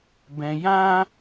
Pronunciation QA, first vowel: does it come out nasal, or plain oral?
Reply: nasal